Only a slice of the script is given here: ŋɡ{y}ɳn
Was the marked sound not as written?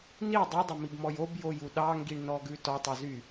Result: yes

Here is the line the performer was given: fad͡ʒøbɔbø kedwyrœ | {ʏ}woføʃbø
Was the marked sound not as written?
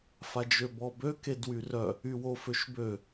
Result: yes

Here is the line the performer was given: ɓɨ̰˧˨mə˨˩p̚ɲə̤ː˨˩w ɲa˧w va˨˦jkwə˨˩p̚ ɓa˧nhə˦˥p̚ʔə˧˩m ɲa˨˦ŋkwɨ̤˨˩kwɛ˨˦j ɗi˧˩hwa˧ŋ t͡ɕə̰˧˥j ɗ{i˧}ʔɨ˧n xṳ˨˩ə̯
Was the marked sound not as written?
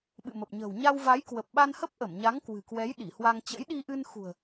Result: no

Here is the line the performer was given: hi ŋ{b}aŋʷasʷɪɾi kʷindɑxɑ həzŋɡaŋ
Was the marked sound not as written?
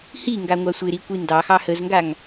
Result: yes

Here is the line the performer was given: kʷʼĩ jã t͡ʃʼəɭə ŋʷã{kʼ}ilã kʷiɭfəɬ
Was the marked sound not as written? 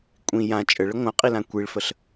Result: yes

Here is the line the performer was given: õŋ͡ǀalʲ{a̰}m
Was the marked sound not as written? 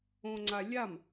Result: yes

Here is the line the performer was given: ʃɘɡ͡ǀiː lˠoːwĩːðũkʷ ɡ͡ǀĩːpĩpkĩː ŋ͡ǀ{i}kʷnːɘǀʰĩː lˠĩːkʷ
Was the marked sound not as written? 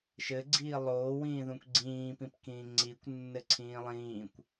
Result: no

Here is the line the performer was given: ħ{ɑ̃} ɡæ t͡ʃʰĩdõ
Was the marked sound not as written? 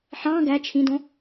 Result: no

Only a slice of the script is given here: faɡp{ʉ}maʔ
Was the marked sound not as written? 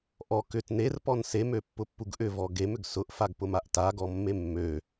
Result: yes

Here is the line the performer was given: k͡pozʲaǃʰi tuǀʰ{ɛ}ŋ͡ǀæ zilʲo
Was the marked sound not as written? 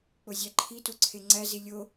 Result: yes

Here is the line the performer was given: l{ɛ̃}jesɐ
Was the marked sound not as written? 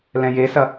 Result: no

